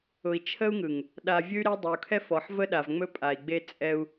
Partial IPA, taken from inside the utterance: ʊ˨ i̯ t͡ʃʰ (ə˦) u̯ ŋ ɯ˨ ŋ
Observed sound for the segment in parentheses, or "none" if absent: ə˦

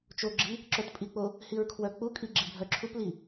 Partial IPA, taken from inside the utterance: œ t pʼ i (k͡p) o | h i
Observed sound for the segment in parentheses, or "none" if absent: k͡p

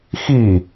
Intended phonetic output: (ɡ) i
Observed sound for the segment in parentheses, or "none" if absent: x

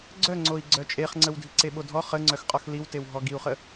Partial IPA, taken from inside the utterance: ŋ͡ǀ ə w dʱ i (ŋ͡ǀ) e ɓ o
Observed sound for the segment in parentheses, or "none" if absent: ǀ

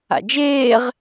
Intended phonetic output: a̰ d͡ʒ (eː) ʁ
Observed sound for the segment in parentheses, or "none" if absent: eː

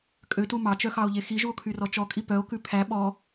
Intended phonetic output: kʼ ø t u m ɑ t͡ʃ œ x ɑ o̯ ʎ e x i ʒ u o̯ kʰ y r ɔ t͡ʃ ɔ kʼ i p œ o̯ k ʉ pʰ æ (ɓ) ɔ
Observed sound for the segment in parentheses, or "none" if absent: ɓ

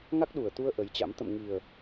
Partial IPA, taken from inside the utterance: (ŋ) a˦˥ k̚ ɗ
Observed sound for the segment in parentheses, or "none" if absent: ŋ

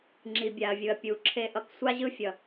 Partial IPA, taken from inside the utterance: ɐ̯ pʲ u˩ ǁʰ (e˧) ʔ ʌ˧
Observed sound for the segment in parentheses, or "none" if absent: e˧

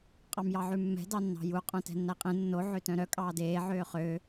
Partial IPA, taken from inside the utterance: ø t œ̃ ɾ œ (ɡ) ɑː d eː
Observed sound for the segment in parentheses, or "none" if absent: kʼ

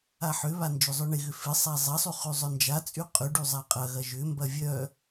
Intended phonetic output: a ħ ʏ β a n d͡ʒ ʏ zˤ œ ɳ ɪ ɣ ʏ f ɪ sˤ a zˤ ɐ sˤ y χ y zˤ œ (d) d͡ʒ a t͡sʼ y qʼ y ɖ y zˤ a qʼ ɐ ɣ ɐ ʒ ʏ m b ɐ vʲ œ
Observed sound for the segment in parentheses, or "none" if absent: n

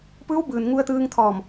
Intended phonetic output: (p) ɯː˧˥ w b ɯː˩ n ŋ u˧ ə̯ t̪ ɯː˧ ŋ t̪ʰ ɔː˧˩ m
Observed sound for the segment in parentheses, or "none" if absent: p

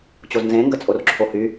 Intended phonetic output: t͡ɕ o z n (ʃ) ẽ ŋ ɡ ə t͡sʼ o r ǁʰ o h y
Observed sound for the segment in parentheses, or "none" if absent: z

